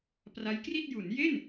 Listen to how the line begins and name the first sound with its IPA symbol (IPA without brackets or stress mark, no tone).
p